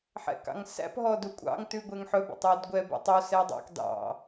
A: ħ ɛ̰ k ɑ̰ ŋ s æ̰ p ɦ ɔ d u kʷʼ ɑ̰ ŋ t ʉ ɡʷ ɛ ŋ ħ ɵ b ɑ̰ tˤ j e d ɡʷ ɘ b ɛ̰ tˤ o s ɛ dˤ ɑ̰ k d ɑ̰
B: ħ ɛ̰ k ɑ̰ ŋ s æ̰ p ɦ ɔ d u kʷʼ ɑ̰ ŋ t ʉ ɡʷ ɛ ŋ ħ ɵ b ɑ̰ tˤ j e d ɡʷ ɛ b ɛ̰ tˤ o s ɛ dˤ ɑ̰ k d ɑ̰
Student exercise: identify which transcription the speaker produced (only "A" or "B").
B